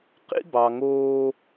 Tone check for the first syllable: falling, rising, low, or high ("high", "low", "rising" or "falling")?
high